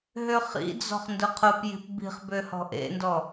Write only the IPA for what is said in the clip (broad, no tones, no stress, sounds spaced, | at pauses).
ɦ ø χ ḭ d͡z ɔ̤ χ n d ʊ qʰ ʊ p j i̤ p b i̤ χ b ø h ɔ̤ ʔ ḛ n d ɔ